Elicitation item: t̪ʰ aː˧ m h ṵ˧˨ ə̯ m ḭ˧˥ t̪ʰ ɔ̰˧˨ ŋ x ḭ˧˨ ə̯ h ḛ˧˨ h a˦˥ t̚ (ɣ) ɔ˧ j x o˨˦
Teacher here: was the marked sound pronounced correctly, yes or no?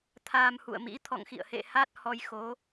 no